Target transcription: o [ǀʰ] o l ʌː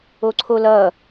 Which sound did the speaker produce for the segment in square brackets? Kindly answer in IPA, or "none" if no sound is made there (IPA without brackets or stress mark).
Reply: ǀʰ